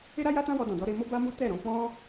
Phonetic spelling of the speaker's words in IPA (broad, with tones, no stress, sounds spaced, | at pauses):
e˦ ɾ a˦ j a˦ t ã˦ w ɔ˧ d ɔ̃˨ d ɔ˧ ɾ e˧ m o˦ b a˦ m u˦ t ɛ˦˨ ɾ ɔ̃˧ k͡p ɔ̃˦